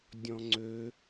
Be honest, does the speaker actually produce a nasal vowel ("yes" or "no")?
yes